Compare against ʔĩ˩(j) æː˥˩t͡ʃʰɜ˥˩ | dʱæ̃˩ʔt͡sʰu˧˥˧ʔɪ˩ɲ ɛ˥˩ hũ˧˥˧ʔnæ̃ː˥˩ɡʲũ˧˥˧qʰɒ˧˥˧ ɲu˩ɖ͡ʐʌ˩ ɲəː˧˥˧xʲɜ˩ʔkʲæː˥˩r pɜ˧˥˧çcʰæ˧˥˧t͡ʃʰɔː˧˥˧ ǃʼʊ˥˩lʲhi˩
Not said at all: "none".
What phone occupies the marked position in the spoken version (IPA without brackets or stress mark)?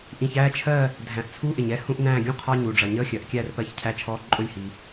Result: ç